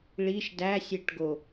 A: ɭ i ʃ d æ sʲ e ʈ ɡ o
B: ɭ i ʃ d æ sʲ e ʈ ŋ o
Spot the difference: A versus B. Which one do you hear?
A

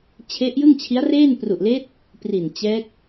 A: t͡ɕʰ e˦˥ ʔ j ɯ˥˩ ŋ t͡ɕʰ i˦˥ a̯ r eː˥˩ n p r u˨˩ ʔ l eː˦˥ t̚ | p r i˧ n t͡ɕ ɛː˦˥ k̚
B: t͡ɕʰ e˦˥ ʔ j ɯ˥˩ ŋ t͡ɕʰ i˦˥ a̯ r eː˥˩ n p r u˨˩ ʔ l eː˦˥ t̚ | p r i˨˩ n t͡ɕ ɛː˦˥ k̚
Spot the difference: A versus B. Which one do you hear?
B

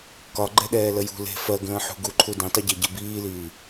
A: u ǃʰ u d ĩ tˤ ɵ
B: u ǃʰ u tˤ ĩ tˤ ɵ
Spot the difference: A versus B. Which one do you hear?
A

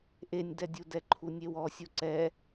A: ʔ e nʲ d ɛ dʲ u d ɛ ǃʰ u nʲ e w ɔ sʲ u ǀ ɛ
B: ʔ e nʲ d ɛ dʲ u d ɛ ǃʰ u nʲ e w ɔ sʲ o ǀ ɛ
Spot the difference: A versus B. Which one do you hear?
B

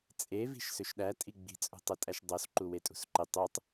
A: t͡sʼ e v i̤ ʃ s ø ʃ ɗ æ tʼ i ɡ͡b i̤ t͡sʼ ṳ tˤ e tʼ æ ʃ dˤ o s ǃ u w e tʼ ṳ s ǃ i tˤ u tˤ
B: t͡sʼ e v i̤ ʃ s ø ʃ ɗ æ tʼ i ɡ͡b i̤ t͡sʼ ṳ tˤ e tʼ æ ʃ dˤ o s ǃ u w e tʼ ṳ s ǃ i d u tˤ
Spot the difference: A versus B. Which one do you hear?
A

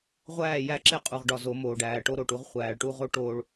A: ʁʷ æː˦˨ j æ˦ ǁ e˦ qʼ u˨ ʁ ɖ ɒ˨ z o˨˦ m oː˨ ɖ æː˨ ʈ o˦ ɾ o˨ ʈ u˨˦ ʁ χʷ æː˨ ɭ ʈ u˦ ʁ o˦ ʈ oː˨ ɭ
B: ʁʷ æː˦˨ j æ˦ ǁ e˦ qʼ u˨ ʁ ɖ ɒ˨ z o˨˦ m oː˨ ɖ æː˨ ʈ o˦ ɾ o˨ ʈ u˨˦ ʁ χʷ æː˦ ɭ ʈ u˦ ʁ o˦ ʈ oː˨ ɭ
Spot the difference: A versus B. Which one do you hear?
A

